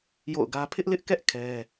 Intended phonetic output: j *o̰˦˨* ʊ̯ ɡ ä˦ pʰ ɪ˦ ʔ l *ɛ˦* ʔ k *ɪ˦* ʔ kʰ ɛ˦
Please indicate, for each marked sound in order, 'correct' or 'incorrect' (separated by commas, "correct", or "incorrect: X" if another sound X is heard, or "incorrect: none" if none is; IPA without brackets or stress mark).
correct, incorrect: ɪ˦, incorrect: ɛ˦